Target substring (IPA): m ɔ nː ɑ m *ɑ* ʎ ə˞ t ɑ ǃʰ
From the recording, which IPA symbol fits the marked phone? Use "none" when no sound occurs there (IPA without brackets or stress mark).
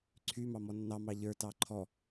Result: ɑ